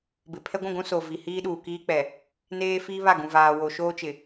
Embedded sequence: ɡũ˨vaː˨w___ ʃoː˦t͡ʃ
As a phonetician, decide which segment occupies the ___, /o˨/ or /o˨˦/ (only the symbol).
o˨